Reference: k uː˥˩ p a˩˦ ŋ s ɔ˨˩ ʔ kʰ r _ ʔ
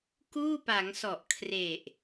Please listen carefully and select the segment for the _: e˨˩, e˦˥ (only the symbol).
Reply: e˨˩